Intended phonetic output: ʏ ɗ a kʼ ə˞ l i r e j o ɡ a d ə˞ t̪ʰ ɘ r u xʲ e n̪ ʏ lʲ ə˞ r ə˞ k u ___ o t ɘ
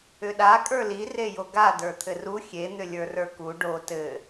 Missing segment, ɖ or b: ɖ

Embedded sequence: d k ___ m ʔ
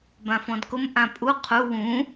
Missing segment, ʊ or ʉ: ʊ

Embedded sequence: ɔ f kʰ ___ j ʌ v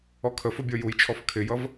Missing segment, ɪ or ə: ɪ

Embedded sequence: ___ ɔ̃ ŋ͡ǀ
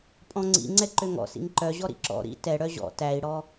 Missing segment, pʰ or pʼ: pʼ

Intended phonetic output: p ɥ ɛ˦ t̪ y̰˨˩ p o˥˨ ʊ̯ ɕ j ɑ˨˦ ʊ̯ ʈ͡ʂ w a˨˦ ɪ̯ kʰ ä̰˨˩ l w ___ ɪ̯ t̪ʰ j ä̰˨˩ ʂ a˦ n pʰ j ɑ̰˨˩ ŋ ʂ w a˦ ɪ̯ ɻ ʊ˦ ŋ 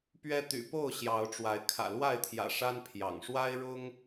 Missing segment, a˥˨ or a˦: a˥˨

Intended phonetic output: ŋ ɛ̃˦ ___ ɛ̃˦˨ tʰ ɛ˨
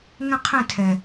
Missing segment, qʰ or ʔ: qʰ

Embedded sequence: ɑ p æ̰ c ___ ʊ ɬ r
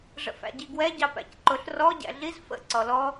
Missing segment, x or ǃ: ǃ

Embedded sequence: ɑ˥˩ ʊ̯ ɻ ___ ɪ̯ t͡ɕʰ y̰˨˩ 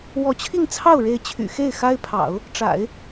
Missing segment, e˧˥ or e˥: e˧˥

